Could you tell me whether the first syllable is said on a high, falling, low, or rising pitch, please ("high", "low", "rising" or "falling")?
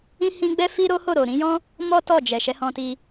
high